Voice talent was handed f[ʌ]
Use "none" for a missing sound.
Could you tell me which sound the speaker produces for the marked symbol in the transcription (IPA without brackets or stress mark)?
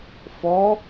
ɔ